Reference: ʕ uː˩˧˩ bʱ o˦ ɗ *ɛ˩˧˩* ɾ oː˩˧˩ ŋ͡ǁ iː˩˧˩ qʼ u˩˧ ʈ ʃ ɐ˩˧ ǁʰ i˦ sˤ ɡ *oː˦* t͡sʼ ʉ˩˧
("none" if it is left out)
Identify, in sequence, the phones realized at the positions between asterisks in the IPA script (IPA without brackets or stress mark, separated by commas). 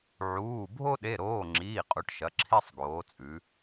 e˩˧˩, oː˩˧